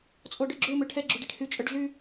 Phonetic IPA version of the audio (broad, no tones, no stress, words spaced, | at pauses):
t͡sʼoɖøɡ͡ǁø møʈʰɛ ɡ͡ǁuɖiʈhy t͡ʃʼœɖɮy